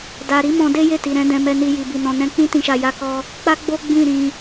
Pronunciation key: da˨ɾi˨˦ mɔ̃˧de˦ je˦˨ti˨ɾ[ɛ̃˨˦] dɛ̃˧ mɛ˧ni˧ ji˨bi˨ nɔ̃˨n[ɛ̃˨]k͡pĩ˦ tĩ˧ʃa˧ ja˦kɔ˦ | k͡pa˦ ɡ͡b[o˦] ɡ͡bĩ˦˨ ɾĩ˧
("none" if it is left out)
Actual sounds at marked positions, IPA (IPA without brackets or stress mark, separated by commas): ɛ̃˨˦, ɛ̃˧, o˦